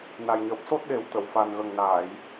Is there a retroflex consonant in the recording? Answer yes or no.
no